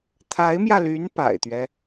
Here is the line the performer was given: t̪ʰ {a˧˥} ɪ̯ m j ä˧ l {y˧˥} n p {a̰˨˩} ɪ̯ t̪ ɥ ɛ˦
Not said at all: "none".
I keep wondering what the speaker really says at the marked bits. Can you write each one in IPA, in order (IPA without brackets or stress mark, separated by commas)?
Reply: a˧˥, y˧˥, a̰˨˩